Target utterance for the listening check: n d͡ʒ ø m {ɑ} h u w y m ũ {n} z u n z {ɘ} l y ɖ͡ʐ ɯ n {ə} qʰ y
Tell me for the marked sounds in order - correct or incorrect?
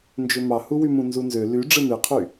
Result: correct, correct, incorrect, incorrect

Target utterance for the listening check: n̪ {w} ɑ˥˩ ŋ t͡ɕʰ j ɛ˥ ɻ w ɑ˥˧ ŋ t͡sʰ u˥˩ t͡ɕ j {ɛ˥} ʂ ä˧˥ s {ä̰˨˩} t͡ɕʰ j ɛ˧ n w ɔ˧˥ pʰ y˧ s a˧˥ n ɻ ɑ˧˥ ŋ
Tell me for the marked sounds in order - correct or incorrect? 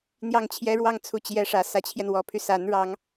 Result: incorrect, correct, incorrect

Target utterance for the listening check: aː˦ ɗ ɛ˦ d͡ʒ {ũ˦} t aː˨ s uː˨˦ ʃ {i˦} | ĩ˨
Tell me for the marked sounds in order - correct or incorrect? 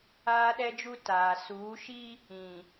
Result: incorrect, correct

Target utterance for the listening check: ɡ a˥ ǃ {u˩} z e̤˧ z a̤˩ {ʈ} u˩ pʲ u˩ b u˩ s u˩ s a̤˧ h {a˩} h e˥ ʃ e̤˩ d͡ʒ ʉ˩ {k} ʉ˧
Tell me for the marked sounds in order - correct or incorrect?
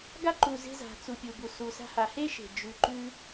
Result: correct, incorrect, correct, incorrect

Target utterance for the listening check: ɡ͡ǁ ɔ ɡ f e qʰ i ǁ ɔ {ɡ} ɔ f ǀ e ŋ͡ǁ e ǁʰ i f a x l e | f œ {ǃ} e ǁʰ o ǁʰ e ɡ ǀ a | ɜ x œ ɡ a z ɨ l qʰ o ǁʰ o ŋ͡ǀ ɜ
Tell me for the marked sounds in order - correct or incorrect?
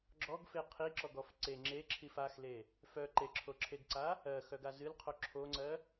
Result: correct, correct

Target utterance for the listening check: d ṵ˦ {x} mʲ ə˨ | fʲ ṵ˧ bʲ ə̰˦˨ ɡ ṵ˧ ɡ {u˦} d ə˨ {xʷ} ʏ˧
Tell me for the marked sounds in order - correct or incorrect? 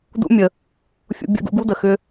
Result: incorrect, correct, incorrect

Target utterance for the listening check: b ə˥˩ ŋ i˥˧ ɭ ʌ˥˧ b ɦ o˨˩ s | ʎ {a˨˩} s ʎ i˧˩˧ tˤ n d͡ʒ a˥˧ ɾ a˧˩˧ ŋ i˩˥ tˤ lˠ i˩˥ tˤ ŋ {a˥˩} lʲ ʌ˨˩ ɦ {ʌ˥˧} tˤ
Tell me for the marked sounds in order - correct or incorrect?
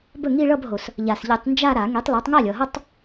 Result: correct, correct, correct

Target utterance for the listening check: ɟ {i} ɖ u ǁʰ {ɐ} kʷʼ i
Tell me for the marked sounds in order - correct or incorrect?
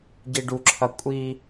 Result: correct, correct

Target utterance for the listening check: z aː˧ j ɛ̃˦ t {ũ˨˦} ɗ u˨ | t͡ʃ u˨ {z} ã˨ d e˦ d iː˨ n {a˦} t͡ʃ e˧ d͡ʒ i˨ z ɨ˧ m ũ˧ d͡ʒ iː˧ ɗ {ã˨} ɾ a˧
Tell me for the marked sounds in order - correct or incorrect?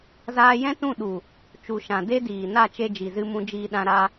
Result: incorrect, incorrect, incorrect, incorrect

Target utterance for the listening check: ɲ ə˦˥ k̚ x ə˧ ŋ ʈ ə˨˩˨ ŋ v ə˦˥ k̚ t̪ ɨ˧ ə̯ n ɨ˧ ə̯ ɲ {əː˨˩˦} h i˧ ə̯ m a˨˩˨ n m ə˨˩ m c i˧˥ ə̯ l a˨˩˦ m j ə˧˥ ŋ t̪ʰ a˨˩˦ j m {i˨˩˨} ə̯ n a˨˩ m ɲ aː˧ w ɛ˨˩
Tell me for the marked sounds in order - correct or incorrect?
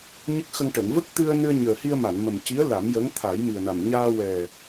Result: incorrect, incorrect

